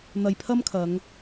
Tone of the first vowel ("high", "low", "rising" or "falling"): low